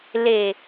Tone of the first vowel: low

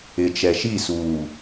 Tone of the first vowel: low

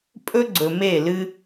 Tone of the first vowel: high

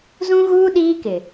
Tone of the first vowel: high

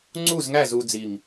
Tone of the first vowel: falling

